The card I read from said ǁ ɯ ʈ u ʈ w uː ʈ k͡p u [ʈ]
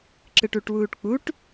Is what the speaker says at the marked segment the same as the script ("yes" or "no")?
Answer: yes